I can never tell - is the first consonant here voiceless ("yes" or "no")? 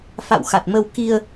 yes